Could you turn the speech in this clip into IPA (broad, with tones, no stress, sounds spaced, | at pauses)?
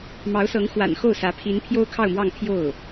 m ɑ˧˥ ʊ̯ s ɤ˧˥ ŋ x w a̰˨˩ n x o˥˩ ʊ̯ s ä˧˥ pʰ i˧˥ n pʰ j o˥ ʊ̯ kʰ ɑ˥˧ ʊ̯ m w ɑ˥˧ ŋ pʰ j o˥˩ ʊ̯